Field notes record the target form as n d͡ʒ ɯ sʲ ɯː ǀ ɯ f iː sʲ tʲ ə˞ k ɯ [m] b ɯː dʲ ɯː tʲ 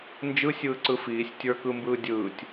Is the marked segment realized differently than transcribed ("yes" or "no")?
no